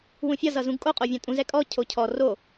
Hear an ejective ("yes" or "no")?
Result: yes